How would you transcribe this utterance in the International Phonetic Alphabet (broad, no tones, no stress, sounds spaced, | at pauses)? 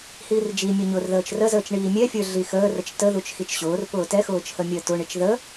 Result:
h iː r d͡ʒ i mʲ ʊ ɲ ʊː r ð əː t͡ʃ r ə z əː t͡ʃ ɳ iː mʲ ɛ fʲ ə˞ ɮ i x əː r ə t͡ʃ t ə ð u t͡ʃ x i t͡ʃ ɕ ʊː r p ʊː t ɛ x ʊː t͡ʃ h ə mʲ əː t ʊ ɳ i t͡ʃ ð ə